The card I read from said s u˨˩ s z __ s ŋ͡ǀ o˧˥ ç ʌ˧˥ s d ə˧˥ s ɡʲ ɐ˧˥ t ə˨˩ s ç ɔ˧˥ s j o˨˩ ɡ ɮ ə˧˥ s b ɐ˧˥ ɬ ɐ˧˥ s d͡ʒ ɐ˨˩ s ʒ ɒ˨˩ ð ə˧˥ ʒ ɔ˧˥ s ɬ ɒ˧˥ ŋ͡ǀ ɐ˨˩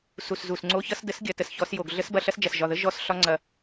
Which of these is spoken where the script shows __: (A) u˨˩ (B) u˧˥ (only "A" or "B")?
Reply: A